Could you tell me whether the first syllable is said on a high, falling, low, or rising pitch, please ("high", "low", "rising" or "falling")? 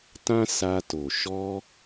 high